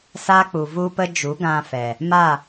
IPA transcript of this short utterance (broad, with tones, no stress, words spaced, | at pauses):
sa˦k͡pu˨vu˦pə˦ d͡ʒu˨˦ɡã˧fɛ˨ | ma˦˨